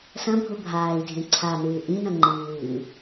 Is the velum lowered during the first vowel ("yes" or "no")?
yes